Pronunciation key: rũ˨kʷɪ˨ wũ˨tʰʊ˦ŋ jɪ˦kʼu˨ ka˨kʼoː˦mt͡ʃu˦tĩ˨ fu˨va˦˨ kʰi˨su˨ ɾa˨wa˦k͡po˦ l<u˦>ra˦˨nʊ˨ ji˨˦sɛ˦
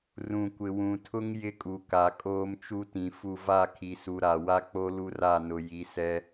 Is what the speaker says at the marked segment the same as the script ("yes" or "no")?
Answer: yes